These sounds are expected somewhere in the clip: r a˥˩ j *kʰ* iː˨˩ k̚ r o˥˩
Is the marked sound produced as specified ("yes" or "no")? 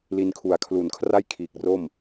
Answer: yes